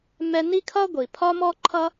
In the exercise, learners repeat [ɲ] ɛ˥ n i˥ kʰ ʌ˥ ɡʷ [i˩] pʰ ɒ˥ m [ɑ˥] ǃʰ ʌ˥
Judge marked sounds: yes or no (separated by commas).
no, yes, no